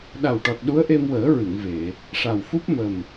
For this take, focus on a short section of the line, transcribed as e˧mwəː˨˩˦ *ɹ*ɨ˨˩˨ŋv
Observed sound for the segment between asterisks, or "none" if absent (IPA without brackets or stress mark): ɹ